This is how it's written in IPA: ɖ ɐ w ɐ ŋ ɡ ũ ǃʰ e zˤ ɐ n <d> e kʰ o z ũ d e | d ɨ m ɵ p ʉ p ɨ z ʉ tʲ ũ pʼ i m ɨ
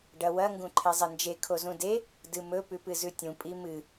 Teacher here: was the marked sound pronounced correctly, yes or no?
no